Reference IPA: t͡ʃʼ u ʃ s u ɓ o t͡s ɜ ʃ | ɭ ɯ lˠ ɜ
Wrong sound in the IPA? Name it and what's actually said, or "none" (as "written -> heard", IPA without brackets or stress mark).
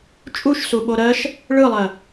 t͡s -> ɾ